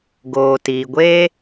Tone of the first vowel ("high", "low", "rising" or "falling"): low